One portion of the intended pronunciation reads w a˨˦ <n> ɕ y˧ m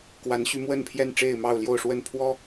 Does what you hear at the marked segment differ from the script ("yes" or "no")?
no